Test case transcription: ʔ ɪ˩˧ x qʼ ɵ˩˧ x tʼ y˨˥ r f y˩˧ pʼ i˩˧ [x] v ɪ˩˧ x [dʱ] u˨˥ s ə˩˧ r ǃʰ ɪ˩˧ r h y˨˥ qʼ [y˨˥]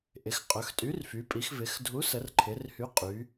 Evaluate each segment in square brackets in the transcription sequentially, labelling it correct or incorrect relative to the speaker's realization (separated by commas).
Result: correct, correct, incorrect